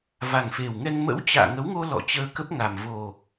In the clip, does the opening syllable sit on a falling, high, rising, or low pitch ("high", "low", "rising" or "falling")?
low